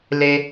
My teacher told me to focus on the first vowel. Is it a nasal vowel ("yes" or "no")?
no